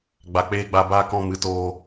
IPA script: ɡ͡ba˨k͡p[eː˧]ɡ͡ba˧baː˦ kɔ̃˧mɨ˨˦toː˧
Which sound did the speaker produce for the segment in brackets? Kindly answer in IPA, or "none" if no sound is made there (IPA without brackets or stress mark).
eː˧